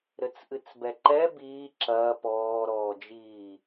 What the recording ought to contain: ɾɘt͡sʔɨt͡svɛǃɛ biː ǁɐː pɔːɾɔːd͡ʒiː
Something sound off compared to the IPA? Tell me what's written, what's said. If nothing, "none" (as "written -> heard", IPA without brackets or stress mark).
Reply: v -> b